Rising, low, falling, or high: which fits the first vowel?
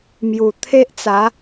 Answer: low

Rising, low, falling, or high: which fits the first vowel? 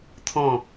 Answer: falling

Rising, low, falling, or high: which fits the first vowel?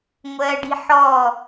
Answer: high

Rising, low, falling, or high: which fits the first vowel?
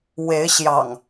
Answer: rising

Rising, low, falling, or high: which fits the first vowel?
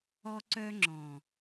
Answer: high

